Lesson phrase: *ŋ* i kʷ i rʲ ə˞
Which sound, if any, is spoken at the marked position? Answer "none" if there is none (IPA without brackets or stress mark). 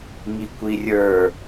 ŋ